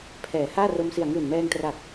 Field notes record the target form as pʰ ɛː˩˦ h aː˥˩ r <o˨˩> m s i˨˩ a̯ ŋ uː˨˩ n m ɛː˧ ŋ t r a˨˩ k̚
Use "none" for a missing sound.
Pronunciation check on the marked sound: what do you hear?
o˧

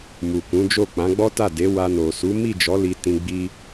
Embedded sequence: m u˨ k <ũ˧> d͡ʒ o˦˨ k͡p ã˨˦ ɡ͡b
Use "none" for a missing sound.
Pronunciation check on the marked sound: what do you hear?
ũ˨˦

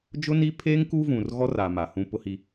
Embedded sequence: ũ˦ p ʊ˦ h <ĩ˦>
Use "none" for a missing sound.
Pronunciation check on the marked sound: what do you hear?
i˦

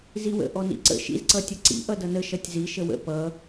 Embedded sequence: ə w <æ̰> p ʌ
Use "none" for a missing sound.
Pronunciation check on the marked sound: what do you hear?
ə̰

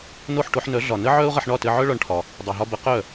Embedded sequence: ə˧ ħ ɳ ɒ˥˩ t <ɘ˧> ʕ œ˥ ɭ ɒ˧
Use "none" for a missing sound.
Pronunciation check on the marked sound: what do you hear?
ɘ˧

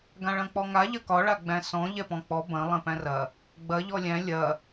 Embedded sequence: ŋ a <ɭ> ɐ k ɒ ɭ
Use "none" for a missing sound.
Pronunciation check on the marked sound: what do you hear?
ʎ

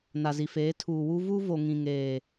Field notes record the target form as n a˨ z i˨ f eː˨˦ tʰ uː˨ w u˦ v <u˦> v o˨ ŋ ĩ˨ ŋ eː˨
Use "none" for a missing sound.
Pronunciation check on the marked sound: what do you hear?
u˦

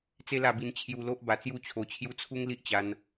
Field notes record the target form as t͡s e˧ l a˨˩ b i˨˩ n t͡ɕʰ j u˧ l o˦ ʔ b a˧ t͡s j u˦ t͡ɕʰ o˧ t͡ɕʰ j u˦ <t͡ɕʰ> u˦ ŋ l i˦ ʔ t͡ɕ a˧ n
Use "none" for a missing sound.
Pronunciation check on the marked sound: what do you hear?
t͡sʰ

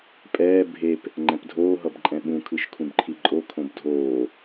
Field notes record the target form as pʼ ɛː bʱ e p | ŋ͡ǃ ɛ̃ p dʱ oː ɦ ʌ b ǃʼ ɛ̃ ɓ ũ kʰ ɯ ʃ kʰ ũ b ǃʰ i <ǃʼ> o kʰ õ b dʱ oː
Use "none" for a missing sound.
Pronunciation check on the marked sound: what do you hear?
ǃʼ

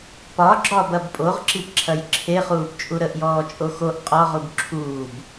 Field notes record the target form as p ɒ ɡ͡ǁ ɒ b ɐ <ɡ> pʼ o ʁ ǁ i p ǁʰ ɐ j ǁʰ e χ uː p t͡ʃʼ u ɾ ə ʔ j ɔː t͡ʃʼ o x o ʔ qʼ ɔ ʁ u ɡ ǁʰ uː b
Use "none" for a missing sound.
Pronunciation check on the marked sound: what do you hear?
b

